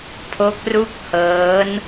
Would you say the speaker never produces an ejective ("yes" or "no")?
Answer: yes